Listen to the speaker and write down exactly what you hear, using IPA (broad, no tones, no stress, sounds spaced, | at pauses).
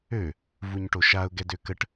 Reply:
ø | v u ɲ ʈ o ʃ a ʊ̯ ɡ ɛ d ø k ə ʈ